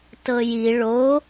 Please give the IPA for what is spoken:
tɤji ɭo

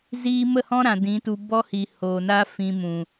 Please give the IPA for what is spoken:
ziː˦ mə˦˨hɔ̃˦ɾã˨ dĩ˨˦tu˧ bɔ˦hi˨ hoː˨naː˦ fĩ˧ mũ˨

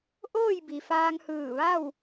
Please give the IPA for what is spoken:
ʔoː˥˨jbi˩faː˧ŋhɯː˧˩ ʋa˥˨w

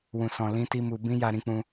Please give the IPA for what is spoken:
wũ˨sɔ̃˨ lĩ˧ti˧ mu˧ bĩ˦ja˧ ɾĩ˧k͡pũ˧

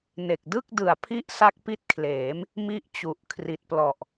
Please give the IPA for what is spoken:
ne˨˩k̚dɯ˥˩k̚dɯ˨˩a̯pʰi˦˥ʔ sa˦˥k̚pi˦˥t̚kʰleː˩˦m | mi˦˥ʔ t͡ɕu˨˩ʔkʰri˨˩t̚plɔ˨˩ʔ

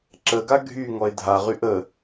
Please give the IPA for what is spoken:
ǁəɡa ɡʱy ŋɔe̯dʱaʁyʔ ə

